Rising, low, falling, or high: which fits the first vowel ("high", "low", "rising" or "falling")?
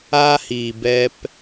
high